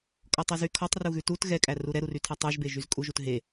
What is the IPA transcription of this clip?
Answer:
kʼ ɔ tˤ ɛ z y kʰ ɔ tˤ r u ɣ ʉ t u t ɣ ɛ kʼ æ r u ɾ ɛ ɾ u r y tʰ æ tˤ ʉ ʒ b e ʒ y z kʼ u ʒ u t ɦ e

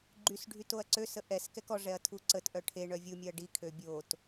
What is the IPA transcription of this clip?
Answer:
ɡ͡ǃ y s ɖʱ y t o ɐ̯ ǀ ø s ə ʔ ɛ s k ɛ k ɔ ʐ ɛ ɐ̯ tʰ u ǀ ə t ʔ œ ʈʰ e ɳ œ vʲ u mʲ œ ɐ̯ ɖ i kʰ ø bʲ o t

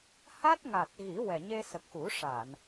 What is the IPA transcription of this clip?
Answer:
h a˦˥ t̚ ŋ a˨˩ t̚ ɣ i˨˩˦ w ɛ˨˩ ɲ e˧ s ə˨˩ k̚ x u˨˩˦ ʂ a˨˩˨ n

